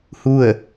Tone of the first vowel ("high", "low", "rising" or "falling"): falling